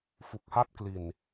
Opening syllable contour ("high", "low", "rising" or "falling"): low